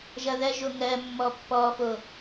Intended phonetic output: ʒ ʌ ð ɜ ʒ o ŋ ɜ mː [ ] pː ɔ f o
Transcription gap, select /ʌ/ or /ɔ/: ɔ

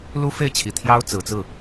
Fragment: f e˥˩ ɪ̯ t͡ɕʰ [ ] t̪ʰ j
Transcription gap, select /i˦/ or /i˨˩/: i˨˩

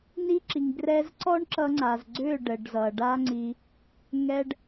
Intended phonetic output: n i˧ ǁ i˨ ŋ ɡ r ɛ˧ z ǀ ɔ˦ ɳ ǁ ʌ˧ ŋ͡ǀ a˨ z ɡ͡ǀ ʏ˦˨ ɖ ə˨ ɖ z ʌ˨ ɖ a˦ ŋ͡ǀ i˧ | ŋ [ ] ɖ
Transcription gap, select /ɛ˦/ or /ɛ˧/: ɛ˧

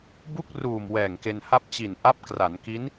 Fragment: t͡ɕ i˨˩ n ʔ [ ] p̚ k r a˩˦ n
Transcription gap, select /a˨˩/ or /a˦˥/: a˦˥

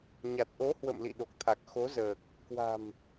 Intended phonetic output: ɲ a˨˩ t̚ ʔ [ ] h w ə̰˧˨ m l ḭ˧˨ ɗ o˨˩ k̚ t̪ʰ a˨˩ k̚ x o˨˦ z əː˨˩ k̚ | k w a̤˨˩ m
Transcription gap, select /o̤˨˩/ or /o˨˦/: o˨˦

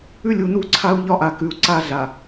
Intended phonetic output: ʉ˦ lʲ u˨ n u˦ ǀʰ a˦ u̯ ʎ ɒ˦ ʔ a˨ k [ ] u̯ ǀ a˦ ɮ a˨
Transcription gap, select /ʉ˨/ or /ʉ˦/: ʉ˨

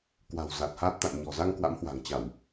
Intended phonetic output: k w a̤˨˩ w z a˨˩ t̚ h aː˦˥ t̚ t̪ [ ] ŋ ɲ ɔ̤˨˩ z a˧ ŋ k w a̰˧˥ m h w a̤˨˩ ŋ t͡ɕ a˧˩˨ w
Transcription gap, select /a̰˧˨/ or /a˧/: a̰˧˨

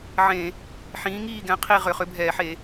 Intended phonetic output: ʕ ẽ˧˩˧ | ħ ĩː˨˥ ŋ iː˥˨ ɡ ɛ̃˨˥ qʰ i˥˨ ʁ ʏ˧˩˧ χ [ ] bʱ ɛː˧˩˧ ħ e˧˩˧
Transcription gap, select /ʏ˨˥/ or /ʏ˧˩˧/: ʏ˨˥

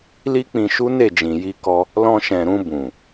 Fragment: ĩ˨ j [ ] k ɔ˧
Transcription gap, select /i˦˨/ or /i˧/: i˧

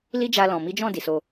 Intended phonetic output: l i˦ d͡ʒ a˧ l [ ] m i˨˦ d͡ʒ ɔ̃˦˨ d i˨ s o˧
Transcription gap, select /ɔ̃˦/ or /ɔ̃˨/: ɔ̃˨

